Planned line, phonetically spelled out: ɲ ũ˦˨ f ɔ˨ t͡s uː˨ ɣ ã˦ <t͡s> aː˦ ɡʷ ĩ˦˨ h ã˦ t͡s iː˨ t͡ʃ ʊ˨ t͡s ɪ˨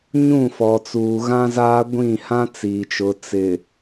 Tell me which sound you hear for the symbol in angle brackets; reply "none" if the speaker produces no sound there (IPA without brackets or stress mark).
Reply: z